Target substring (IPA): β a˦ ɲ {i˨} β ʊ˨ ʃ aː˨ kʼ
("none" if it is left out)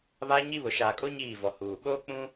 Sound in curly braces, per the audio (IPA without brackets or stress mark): i˦